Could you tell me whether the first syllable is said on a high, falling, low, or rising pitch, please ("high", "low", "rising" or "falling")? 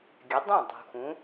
rising